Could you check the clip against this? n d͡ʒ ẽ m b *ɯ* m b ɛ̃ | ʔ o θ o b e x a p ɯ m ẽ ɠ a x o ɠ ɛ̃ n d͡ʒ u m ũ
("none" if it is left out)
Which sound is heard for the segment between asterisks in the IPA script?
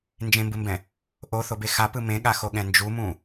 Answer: ɯ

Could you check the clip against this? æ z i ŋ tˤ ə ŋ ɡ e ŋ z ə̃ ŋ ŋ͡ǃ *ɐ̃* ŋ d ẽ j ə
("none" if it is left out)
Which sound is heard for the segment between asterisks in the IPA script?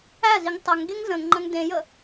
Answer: ɐ̃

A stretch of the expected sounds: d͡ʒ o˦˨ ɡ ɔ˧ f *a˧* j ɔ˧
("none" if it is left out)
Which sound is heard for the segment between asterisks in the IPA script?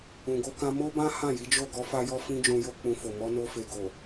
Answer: a˧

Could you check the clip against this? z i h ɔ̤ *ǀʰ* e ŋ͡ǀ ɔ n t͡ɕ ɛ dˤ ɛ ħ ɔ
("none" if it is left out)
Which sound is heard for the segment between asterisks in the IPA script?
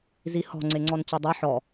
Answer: ŋ͡ǀ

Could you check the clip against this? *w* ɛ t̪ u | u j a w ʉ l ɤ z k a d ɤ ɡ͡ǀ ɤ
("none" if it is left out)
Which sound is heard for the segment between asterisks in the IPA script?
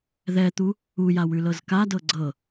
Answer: ð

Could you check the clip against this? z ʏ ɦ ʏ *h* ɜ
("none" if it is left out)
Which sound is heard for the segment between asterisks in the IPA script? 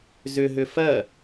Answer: f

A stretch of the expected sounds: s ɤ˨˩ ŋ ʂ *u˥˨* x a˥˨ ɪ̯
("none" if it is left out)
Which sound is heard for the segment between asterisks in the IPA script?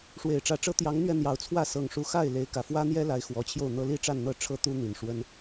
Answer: u˨˦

